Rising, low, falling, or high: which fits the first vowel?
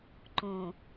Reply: low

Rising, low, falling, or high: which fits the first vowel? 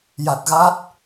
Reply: low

